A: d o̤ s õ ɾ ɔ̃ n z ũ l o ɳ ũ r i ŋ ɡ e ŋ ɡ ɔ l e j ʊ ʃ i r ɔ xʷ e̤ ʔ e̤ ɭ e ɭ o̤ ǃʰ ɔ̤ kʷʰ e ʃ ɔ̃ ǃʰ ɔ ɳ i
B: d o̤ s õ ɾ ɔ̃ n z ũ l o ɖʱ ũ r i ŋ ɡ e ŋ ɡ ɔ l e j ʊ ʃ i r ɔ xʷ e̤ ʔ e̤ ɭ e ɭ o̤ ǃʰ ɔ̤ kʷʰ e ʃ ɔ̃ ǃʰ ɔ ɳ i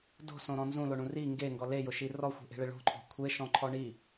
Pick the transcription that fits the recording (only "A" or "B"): A